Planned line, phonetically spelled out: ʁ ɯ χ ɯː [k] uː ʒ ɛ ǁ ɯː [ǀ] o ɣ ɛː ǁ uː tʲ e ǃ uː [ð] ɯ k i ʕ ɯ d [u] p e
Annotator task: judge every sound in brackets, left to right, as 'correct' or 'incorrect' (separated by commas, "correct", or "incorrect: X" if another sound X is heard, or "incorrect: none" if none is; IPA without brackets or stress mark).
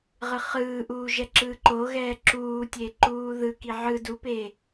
incorrect: ʔ, incorrect: ǃ, correct, correct